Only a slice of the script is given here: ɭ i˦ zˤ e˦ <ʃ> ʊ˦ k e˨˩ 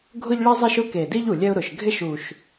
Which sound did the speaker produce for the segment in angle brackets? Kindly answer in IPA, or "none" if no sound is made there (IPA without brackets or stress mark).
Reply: ʃ